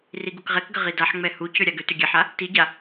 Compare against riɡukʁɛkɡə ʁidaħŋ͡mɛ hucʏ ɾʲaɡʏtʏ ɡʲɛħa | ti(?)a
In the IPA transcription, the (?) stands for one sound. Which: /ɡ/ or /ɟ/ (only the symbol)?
ɟ